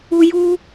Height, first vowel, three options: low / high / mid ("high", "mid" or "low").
high